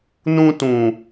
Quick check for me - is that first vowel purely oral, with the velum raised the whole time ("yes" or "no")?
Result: no